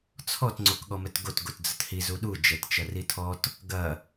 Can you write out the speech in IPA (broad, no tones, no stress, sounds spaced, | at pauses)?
t͡sʰ ɔ t ŋ͡ǀ o k ɠ ɔ m ɛ t ɡ o t ɡ o t d͡z ə t h i z u ɗ u d͡ʒ ɛ t t͡ʃ ɐ r i tʰ ɔ t | ɡ ɐ